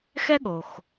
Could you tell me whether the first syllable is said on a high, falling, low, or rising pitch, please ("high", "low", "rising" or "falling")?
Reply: high